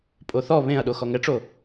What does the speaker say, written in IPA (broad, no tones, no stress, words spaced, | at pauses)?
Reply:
pʼoθɔ βẽɐ̯ɗo xɔŋɛʈ͡ʂo